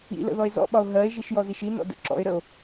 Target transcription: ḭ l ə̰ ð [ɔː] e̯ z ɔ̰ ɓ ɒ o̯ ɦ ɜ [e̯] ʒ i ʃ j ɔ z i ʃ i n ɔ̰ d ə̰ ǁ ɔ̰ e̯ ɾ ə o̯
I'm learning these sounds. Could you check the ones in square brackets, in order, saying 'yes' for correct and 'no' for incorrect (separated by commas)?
no, yes